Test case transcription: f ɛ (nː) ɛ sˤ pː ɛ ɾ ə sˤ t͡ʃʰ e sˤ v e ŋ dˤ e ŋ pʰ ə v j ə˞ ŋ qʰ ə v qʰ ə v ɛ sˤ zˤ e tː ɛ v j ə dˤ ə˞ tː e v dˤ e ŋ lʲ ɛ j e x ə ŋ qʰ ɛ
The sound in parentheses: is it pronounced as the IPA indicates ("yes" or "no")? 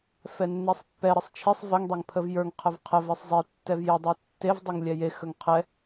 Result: yes